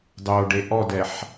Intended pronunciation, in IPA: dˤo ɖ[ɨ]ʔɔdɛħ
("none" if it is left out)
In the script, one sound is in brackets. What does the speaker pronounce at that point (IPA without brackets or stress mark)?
e